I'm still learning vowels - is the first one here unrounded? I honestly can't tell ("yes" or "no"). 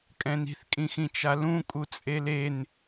yes